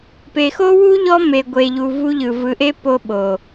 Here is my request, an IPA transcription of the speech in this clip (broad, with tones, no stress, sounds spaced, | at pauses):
p e˨ x o˦ w u˦ ʎ ɔ˦ m e˨ ɡʷ e˨ ʎ u˨ v u˦ ʎ ɯ˨ v ɯ˨ ʔ e˦ p o˦ ɓ o˨